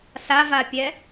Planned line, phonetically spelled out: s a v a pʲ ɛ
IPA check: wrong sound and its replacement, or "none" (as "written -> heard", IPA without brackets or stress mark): none